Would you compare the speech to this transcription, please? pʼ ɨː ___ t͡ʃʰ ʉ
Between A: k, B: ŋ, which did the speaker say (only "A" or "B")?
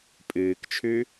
A